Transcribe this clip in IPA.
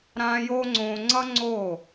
ɾ ãː˧ j oː˦ ŋ͡ǀ õː˧ ŋ͡ǀ ʌ˦ ŋ͡ǀ oː˦˨

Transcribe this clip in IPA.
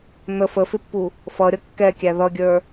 n̪ ə f ə f ɪ pː u | f ʌ ɾʲ ʌ kː ɛ kʲ æ ð ʌ ɡʲ ə˞

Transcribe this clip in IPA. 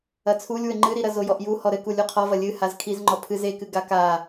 ɐ t͡sʰ u lʲ w ɘ ŋ͡ǃ ɨ ɾ i ɾ ɐ z o j ɔ ʔ j u h ɔ ɾ ɘ k u lʲ u qʰ ɔ v ɐ lʲ ɨ h a z kʰ i z ŋ͡ǃ ɔ pʰ ɨ z e k ɨ ɡ a k a

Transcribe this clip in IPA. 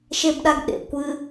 ʃ e b ɗ a ɡ ɗ ḛ kʷ ɨ

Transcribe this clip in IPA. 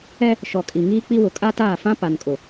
ɛ˦ | ʃ ɔ˨ kʼ i˨ ŋ iː˦ k͡p i˦ w ʊ˨ kʼ a˦ t aː˦˨ f ã˦ p a˨ n kʼ ʊ˨

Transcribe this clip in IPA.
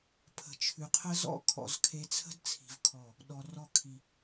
pʰ ə̤˨ t͡ʃʰ ʉ˨ qʰ ə˦ z ɔ̰˦ kʰ ɔ̰˨ z kʰ e˨ t͡sʰ ə̤˦ d t͡sʰ i̤˨ v kʰ ɔ˦˨ | ɗ ɔ˨ r ɔ˦˨ kʰ i˦

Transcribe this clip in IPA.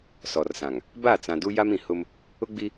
s ɔ˨ r s ã˨ ŋ | b a˦˨ t͡s ã˨ d u˦ j a˦ m ĩ˨ h ʊ˦ m | ʊ˦ ɡ͡b i˦

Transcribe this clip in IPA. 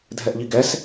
dʱ ɛ ʔ ʎ i ɡ ɛ s

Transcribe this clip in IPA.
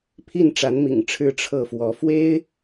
pʰ i˥˩ n ʈ͡ʂ a˧˥ n m ḭ˨˩ ŋ ʈ͡ʂʰ ɻ̩˥˧ ʈ͡ʂʰ ɤ˥˩ f w ɔ˧˥ f w e˥ ɪ̯

